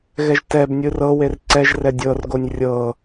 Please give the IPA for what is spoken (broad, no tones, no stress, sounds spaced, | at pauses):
ɣ ɛ ʒ t ɛ b nʲ ɯ r ɤ w e r ǀ ɛ ʒ r ɛ dʲ ɤ r ɡ o nʲ rʲ ɤ